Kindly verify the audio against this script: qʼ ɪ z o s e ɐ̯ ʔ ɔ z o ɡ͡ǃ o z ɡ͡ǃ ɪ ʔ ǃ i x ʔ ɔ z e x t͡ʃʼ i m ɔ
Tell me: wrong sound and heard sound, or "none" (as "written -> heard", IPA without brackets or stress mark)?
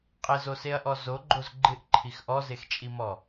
ǃ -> ǃʰ